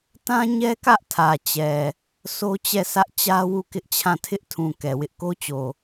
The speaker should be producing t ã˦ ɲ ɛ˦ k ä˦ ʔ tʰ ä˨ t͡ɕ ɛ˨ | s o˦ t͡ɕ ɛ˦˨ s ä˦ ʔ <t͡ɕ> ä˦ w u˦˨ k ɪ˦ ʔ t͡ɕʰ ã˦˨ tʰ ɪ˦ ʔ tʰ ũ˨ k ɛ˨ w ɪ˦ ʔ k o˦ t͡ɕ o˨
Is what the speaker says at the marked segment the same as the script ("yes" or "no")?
yes